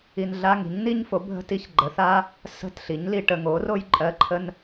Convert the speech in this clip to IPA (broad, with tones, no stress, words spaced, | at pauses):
i˨nɮa˧˥˧ŋi̤˩˥ɲ ni˥ɲfo˩˥ bʱə̤˧˥˧ti˧˥˧ç ɡ͡ǃə˩˥θa˧˥˧ | sə̤˧˥˧t ɬi˩˥ɲli˨ʈə˨ ŋo˩˥ro˥j ǃʼɜ˧˥˧ǃʰə˥n